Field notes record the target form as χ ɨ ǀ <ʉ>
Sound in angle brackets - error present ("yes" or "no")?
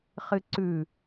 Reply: no